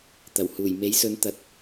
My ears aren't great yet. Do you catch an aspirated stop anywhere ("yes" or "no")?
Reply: no